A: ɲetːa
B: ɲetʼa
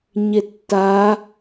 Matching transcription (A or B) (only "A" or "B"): A